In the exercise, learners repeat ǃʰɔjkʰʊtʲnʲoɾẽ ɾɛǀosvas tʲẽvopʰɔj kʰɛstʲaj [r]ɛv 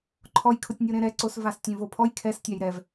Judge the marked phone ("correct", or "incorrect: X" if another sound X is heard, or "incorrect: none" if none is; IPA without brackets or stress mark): incorrect: ɾ